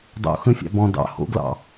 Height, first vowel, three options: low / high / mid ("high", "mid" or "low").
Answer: mid